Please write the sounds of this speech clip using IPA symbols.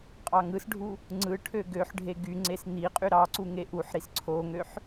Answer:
qʼ ɑ ŋ ɯ s ɖʱ u | ŋ͡ǀ ɯ ʈʰ ø ɡ ø ħ ɖʱ e ɡ y ŋ͡ǀ e s n̪ i qʼ y ɾ ɑ ǀ u ŋ e ʔ u ħ ɾ i s ǀʰ o ŋ ø ħ

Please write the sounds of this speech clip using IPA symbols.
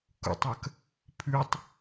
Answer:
k ṵ tˤ ɐ k | pʰ ʉ tˤ

